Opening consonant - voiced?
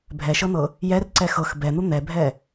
yes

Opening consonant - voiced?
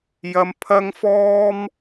yes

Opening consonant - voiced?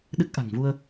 yes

